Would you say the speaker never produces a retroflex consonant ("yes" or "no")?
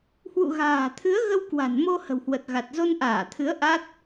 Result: yes